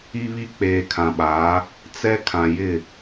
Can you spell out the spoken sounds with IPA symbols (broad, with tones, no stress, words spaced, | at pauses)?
i˦βi˦ k͡peː˨kʰã˨ɓaː˨˦ | t͡sɛ˦ kʰã˨jɪ˦˨